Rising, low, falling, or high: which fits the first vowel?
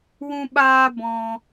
high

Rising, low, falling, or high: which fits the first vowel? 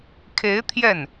rising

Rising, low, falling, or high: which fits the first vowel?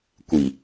low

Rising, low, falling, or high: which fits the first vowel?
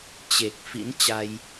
low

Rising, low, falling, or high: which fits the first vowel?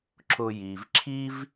low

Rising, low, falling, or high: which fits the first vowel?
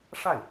falling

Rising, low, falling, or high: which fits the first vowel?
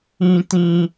high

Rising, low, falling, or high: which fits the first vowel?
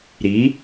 rising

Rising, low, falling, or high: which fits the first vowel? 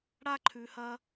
high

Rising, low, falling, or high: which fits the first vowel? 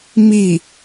falling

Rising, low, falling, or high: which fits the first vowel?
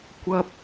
high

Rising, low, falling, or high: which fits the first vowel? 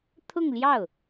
falling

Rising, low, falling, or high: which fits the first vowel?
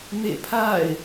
falling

